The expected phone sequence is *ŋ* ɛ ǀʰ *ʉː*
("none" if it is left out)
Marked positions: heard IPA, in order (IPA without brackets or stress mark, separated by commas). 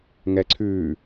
ŋ, ʉː